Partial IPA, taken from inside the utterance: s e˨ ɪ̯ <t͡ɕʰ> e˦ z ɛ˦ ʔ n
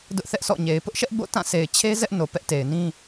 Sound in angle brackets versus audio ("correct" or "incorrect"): correct